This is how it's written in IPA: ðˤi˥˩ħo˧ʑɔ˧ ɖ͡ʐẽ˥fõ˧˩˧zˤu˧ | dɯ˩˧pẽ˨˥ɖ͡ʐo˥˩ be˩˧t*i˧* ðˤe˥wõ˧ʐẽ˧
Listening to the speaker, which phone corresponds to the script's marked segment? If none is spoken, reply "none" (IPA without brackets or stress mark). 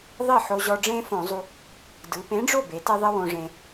e˧